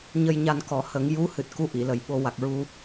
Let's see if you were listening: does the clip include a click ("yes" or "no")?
no